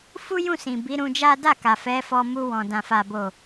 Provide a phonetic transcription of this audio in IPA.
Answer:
fu˦jũ˦˨sĩ˨ bi˨˦ɾũ˧d͡ʒa˦ da˦˨ka˨fɛ˨˦fɔ˧ mu˧wɔ̃˨ dã˨fa˨bo˨

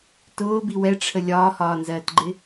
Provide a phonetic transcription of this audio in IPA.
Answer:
tʊːbi wɛʈ͡ʂʰə lʲɒːhɒːnzɜːtɡ͡ǃɪ

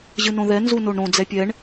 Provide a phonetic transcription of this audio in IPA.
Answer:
ʑɨnõðɛ nzunoɳɾõ d͡zɛpʲɛɳ

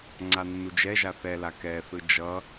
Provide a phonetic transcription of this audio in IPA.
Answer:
ŋ͡ǀanːud͡ʒɛʒa θɛla kɛθɯ d͡ʒʌ

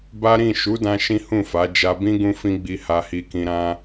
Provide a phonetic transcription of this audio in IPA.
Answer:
ba˦ ɾĩ˦˨ʃu˨˦dã˧ ʃĩ˦hũ˦˨fa˨˦ d͡ʒa˧bĩ˦ ɡũ˦fĩ˦ɡ͡bi˧ ha˧hi˧kĩ˧ɾã˦

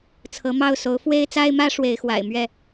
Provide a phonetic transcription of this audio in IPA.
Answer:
t͡sʰɤ˨˦mɑ˥˨ʊ̯ so˨˦ʊ̯ fwe˦ɪ̯t͡sa˦ɪ̯mä˦ ʂwe˨˦ɪ̯xwa̰˨˩ɪ̯ mɥɛ˥˨

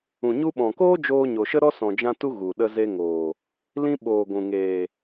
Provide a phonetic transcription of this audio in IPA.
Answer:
ũ˨ɲu˧ɓɔ̃˨koː˦ d͡ʒoː˧ɲo˨ʃə˦ɾɔ˦ sɔ̃˨d͡ʒã˧tu˧ ɣu˨ɗə˧ze˧ŋoː˨ | lĩ˧ɓoː˨ ɡʷũ˨ŋeː˨

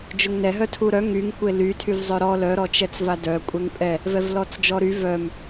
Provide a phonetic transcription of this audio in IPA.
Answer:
d͡ʒʊŋnɛɦœtʰu ɾœ ŋyŋ kʷely tʰyvzˤœɾɔ lœɾɔ t͡ʃɛt͡svadœ kʷʼɛŋpʼɛ | vɛvlɔt͡sd͡ʒɔɾy vœm

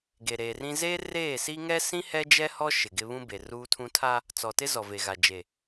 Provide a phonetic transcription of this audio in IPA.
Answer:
ɡe˨ɾeː˨rĩ˦ zeː˦ reː˦˨si˦ ŋɛ˦sĩ˦ hɛ˦d͡ʒɛ˦hɔ˦ ʃɪ˨ɡɪ˦ βũ˦ be˨ruː˦tʰũ˦ tʰa˦ | t͡sɔ˨tɪ˦ zɔ˨ve˨ɣa˨ d͡ʒe˨

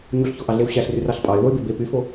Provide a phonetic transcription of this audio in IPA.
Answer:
ɲuɬçoʔɑɮew ɕæɬryrɑɬ pʼɑɪ̯ðoɪ̯be be pyfo

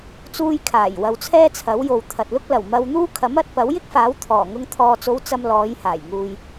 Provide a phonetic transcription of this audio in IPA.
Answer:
t͡suː˧jkʰaː˨˩jwɐ˨w t͡sʰɛː˥t͡sʰɐ˨˥wjo˨w t̪ʰɐ˨t̚lʊ˥k̚ lɐ˨˩w mɐ˧wn̪uː˥ kʰɐ˨˥mɐ˨˥t̚pɐ˨˥w jɪ˥k̚faː˨˥w t̪ʰɔː˨˩ŋʊ˧ŋ t̪ʰɔː˨t͡so˨˧w t͡sɐ˧mlɔː˨˧jhaː˨˩j ŋuː˨j

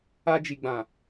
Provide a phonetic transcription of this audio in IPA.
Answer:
a˧d͡ʒi˨ɡ͡bã˨

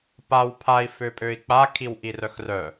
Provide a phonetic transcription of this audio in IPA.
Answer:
paw pʰai̯ føpʼøi̯k͡pa kʰiwʔirœxrœ

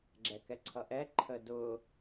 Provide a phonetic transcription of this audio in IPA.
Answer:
ɡ͡ǁɛkɛǀʰʌʔɛ ǃʰədʊ

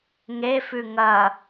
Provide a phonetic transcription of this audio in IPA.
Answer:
ŋefʉ ŋɐ

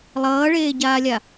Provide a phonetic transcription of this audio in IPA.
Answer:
lˠʌːɭeːɟaːlʲa

